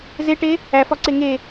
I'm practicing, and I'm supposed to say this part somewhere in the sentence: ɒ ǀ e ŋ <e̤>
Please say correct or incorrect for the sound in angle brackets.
incorrect